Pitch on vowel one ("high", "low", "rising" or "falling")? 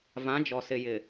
rising